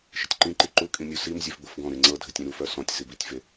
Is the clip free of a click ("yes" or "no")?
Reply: no